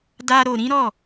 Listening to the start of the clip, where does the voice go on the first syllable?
high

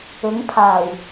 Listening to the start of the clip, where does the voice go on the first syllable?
rising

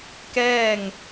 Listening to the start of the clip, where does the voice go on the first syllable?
falling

